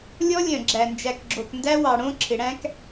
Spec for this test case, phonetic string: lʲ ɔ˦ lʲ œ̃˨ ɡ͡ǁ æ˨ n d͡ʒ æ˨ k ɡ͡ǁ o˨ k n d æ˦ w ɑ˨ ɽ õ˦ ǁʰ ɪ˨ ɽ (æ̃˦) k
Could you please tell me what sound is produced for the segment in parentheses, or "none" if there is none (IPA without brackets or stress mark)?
æ̃˦